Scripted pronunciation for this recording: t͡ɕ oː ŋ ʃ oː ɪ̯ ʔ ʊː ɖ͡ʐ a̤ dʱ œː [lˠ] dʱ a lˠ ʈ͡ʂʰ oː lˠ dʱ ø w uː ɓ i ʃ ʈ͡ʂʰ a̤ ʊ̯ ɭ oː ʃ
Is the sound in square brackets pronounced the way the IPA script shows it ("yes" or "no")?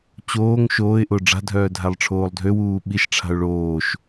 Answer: no